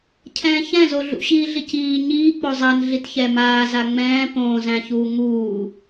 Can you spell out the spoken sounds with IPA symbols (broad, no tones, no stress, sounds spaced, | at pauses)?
cʰ ɛ̃ː ç ɛ̃ z o ɮ ṵ ɕ iː ɮ i c iː ɲ iː k͡p o zˤ a n ɮ i t ç ɛ m aː z a ŋ͡m ɛ̃ː p õː z æ̃ ç uː ŋ uː